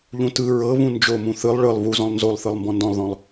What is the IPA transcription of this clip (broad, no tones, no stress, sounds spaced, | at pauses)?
ʎ ũ t ɯ ɹ ɤ β ũ n d͡ʒ o m ũ θ ɯ lˠ ɭ ɯ lˠ β u z ɔ̃ lˠ n z o lˠ θ ɯ lˠ m b ɔ̃ n d ɔ̃ lˠ ð ɔ̃ lˠ